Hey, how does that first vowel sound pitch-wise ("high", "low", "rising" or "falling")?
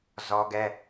high